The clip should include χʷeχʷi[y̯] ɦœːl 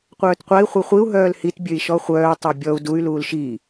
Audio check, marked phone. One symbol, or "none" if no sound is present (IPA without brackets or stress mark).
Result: u̯